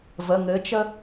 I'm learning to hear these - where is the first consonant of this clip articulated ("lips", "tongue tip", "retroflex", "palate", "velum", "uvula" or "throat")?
lips